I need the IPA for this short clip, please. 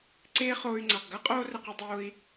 ǀ eː˦ χ oː˧ y̯ ŋ͡ǀ a˨ q ɡ ɐː˦ qʼ oː˧ r ɘ˨ q i˨ dˤ oː˧ i̯

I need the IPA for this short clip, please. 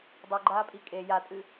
dˤ u ɡ͡ǃ aː pʼ i kʼ e j a tʼ ɨ

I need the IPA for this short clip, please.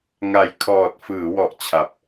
ŋ a˨˩ j kʰ ɔː˨˩ t̚ f ɯː˩˦ w ɔ˨˩ ʔ t͡ɕʰ a˨˩ p̚

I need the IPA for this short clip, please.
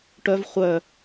ʈ œ v χʷ œ

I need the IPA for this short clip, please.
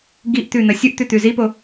ɡ i ʔ t̪ ʉ n̪ ɐ sʲ u ʔ t̪ ʉ t̪ ʉ z i p o

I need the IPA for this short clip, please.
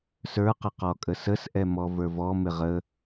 s ə˞ q ə q ɔ kʼ ə s ə s ʔ ɛ m ɔ v ə˞ v ɔ m ɪ ʁ ə

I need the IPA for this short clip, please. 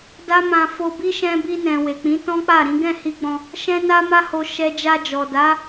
d a˦ m ã˧ f o˧ b i˦ ʃ ɛ̃˧ b i˧ n ɛ̃˨ w e˨ k͡p ĩ˨˦ t ɔ̃˦ k͡p a˦˨ ɾ ĩ˨˦ ɡ ɛ̃˦˨ h i˧ ɡ͡b ɔ̃˧ | ʃ ɛ̃˦ n a˦ m a˦ h o˧ ʃ ɛ˧ d͡ʒ a˧ d͡ʒ ɔ˨ d a˨˦

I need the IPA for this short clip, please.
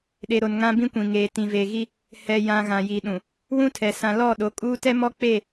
ɗ e˨ ɾ o˨ n ŋ ã˦ b ĩ˦ kʷ ĩ˨ ŋ eː˨ t ĩ˨ v e˨ ɣ i˦ | h ɛ˨ j ã˨ ɣ ã˨ j i˨ ɗ ũ˨ | w ũ˦ tʰ ɛ˨ s ã˨ l ɔ˦˨ ɗ o˨˦ kʼ uː˦ t ɛ˦ m ɔ˦ k͡p e˦˨

